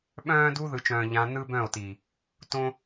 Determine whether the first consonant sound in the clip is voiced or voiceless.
voiced